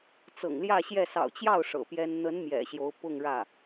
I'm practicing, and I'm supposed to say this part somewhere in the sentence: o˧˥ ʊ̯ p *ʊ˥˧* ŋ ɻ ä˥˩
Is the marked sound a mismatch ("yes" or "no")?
no